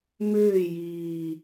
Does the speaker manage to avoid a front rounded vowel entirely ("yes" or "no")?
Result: no